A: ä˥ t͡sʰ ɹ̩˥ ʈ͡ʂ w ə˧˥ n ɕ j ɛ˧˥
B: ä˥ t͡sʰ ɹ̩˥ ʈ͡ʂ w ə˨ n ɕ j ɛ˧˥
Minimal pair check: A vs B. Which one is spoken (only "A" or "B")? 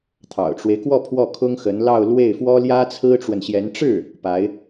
B